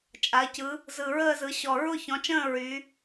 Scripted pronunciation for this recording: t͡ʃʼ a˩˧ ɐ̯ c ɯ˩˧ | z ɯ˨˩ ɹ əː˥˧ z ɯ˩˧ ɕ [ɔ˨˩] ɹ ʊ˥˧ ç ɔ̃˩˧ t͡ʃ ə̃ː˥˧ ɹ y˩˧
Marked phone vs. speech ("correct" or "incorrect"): correct